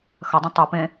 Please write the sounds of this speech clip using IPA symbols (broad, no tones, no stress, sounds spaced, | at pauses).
x ɐ dˤ ɐ̃ tˤ u p ẽ